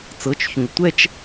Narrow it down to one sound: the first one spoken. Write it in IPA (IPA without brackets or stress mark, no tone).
t͡s